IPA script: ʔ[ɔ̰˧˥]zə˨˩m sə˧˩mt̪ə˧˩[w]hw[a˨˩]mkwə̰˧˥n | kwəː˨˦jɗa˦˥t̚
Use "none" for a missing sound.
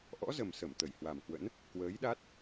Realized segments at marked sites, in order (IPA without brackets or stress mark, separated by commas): ɔ̰˧˥, j, a˨˩